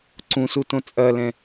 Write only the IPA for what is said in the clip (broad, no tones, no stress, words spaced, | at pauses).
ǀũsu tõt͡sʼɐlɛ̃